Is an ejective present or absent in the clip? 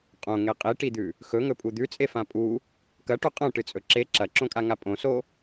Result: present